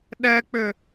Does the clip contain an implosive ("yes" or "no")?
yes